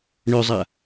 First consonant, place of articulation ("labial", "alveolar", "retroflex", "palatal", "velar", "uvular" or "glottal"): retroflex